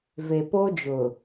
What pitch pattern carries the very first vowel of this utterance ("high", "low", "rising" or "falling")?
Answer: low